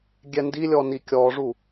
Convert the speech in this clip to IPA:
ɡʲ ɛ n d i lʲ ɔ n i kʲ ɔ ʐ u

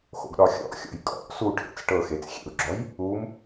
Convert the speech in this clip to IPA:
x o̰ ɡ ɗ ɒ xʲ ɔ̰ ʔ xʲ ɔ̰ j kʼ ɔ̰ ʔ s u ʈʰ ḛ t͡s ʈ ɤ x e t͡s xʲ ḛ u̯ ɡ͡ǁ ɔ j | u m

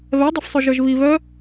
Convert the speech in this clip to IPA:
β ɛ dˤ ɛ f sˤ o ʒ ə˞ ʒ β i β œ

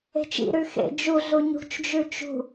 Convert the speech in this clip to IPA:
e̤ t͡ʃ ḭ ɾ ʉ x ḛ d͡ʒ u ɮ u ɲ ṳ t͡ʃ d͡ʒ ʉ t͡ʃ ṳ

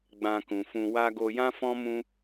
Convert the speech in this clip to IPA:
ɡ͡b ã˧ k ũ˨ f ũ˧ w a˦ ɡ o˧ j ã˦ f ɔ̃˦ m ũ˦

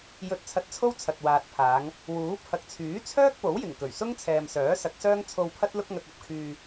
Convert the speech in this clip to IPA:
j ɵ˧ t̚ t͡sʰ ɐ˧ t̚ t͡sʰ o˥ w t͡sʰ ɐ˨ t̚ w aː˨ t̚ pʰ aː˨˧ ŋ | w uː˨˥ pʰ ɐ˨ k̚ t͡sʰ yː˨˥ t͡sʰ œː˥ k̚ p o˨˥ w j ɪ˨˩ ŋ k ɵ˨˩ ɥ s ʊ˥ ŋ t͡sʰ ɛː˨ m s œː˨˥ s ɐ˨˥ k̚ s œː˥ ŋ t͡sʰ o˧ w pʰ ɐ˥ t̚ l ʊ˥ k̚ ŋ ɐ˧ k̚ ɐ˧ p̚ kʰ yː˧

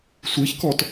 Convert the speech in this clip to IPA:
sʷ i ç k ɔ t

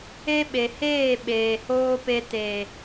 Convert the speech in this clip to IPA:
e˦ ɓ e˨ h eː˦˨ ɓ eː˨ h oː˦ p e˧ t e˨

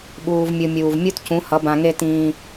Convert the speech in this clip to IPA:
ɓ uː˨ v mʲ ɯ˨ mʲ uː˨ v mʲ u˦ t c ũ˨˦ h ʌ˨˦ b ã˨ ŋ e˦ t ĩː˦

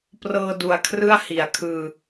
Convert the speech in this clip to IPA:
p r ɤː˧ d u˨˩ a̯ kʰ r ɯ˥˩ a̯ h i˩˦ a̯ kʰ ɯː˧

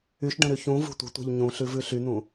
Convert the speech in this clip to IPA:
y ʃ ɖ ə̃ ɾ y ç ũ v ṳ tʷ ə̤ tʷ e̤ ʎ ɲ ũ ɬ ʉ v ʉ ɬ y n̪ ũ

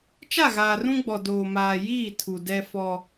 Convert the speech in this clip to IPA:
t͡ʃ a˦˨ ɣ aː˨ r ũ˦ ɡ͡b ɔ˨ d oː˨ m aː˨ j iː˦˨ tʰ u˨ d ɛ˦ f ɔ˦

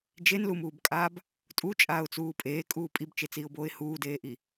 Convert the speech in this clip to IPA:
d͡ʒ e n l u m uː b kʼ aː b | tʼ u t͡ʃʼ aː ʊ̯ t͡s uː pʼ eː kʼ uː pʼ i b t͡ʃ e t͡s iː ʊ̯ b oː ɪ̯ h uː d eː ʔ i

